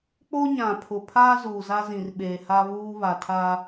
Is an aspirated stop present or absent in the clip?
present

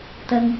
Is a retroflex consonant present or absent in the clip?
absent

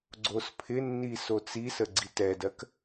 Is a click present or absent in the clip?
present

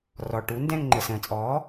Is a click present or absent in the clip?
present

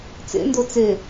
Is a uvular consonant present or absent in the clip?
absent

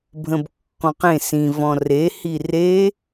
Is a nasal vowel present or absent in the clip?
present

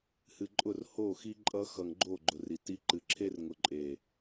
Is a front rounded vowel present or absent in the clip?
absent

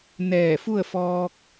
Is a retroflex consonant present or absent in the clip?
absent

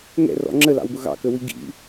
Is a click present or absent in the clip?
present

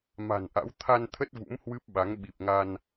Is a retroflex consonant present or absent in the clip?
absent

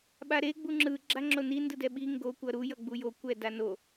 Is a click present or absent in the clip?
present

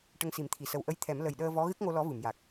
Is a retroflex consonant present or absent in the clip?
present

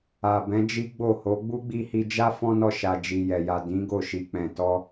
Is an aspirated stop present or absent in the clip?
absent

